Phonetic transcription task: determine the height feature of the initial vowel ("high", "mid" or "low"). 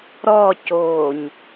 mid